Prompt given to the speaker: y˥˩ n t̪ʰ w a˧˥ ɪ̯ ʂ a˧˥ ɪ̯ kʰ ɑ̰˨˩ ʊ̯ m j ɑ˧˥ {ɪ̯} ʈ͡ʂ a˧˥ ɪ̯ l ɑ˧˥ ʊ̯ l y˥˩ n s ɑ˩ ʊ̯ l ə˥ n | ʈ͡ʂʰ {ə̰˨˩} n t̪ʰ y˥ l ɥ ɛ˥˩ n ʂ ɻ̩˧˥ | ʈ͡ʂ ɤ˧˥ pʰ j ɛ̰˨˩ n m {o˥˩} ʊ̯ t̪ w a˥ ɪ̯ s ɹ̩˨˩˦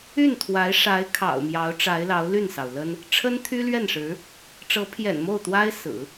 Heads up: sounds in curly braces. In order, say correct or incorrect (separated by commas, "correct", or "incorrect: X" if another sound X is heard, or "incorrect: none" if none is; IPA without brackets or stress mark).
incorrect: ʊ̯, incorrect: ə˥, correct